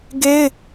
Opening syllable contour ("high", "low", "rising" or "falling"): high